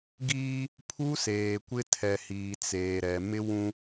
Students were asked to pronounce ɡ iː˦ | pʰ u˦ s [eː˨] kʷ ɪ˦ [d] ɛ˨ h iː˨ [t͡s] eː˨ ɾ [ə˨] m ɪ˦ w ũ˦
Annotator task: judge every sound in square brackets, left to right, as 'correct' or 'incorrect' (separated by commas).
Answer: correct, incorrect, correct, incorrect